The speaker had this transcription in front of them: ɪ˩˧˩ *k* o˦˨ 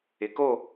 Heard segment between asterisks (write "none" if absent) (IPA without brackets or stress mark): k